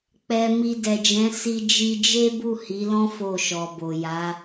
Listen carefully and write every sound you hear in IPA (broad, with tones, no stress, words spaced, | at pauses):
k͡pɛ˨ mi˧dɛ˨d͡ʒɛ̃˨˦ si˧d͡ʒi˧ d͡ʒe˦bu˦˨hi˨˦lɔ̃˦ fo˦˨ʃɔ˨bo˨ ja˨˦